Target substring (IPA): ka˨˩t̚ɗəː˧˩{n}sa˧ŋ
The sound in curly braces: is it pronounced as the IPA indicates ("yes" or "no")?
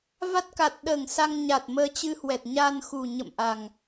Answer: no